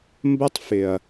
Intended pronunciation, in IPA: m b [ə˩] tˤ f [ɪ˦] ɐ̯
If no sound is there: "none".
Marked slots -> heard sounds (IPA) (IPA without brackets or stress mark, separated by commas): ə˦, ɪ˩